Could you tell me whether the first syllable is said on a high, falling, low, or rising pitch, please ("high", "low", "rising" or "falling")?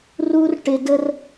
high